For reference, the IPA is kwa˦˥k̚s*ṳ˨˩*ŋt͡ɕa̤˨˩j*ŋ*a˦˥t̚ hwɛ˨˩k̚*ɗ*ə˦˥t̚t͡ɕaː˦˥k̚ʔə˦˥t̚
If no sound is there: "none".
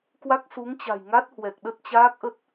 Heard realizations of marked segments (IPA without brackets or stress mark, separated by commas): u˨˦, ŋ, ɗ